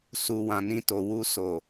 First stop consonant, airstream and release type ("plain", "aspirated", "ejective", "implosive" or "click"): plain